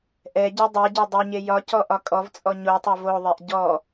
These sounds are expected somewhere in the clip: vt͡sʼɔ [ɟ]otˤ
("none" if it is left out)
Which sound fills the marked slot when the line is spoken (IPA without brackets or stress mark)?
ɲ